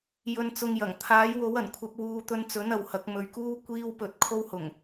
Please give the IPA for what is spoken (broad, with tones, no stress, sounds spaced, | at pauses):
j ɵ˧ n t͡s ʊ˧ ŋ j ɐ˨˩ ŋ t̪ʰ aː˨˥ j w o˨˥ w ɐ˨˩ n kʷʰ ɐ˧ p̚ w uː˧ t̪ ɵ˧ n t͡s ɵ˨˥ n ɐ˨ w h ɐ˨˥ k̚ m ɵ˨ ɥ k uː˥ kʷ iː˥ w p ɵ˧ t̚ kʰ o˥ w h ʊ˨˩ ŋ